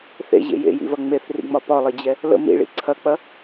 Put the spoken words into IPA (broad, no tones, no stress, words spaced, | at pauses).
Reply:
θḛʑḛ jḛjḭvɐ ŋ͡meθrḭŋ͡mɒ pɒlˠid͡ʑɛ | lə̰ mḭɭḭ ǀʰɐk͡pɐ